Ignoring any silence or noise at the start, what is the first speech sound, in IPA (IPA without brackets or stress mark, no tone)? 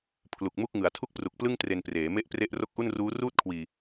pʰ